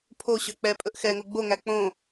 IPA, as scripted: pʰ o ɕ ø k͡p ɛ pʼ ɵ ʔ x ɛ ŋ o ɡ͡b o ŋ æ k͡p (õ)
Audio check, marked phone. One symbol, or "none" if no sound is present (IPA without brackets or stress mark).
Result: õ